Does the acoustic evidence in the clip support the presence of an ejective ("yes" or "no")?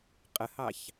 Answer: yes